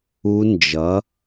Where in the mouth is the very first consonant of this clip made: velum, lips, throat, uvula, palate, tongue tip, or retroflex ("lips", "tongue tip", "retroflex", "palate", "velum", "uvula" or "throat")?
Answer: tongue tip